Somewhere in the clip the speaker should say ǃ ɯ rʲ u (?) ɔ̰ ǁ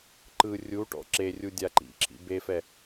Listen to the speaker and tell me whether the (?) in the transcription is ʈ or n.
ʈ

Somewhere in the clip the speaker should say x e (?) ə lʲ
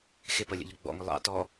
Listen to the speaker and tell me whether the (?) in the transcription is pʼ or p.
p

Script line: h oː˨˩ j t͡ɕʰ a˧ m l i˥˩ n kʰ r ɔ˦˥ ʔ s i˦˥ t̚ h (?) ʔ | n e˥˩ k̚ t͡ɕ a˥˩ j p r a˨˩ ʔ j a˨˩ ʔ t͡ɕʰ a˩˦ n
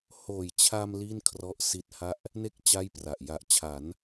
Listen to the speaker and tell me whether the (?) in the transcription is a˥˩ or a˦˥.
a˥˩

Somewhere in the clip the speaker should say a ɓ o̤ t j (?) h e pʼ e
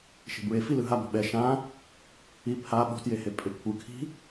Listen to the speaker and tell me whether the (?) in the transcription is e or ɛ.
e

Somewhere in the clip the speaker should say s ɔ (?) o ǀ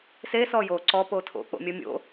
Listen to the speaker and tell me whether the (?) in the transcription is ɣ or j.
j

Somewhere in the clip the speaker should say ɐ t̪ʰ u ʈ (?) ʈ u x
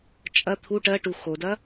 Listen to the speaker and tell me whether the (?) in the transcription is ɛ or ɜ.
ɜ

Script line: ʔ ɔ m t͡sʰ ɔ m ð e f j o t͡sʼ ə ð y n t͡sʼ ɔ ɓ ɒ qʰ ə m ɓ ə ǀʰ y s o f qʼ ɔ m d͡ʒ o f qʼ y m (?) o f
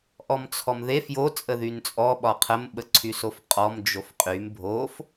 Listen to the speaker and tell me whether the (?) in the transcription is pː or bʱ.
bʱ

